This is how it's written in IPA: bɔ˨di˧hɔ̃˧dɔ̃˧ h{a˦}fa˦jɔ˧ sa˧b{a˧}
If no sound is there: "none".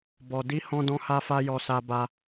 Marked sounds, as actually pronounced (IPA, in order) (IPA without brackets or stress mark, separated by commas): a˦, a˧